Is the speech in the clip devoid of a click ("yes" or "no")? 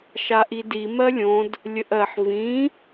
yes